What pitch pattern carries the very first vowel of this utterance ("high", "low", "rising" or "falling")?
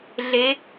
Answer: rising